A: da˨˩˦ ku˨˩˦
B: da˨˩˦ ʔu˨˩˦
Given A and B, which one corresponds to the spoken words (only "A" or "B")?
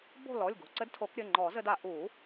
B